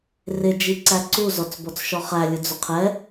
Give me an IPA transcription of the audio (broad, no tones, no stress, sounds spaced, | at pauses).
r ɪ d͡ʒ i ǀ æ ǀ u z ɔ t͡s b ɔ t͡s ʃ ɔ χ æ lʲ ʊ d͡z ʊ qʰ ɛ